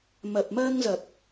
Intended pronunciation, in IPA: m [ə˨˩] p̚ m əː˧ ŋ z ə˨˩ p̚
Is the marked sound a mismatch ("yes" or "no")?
no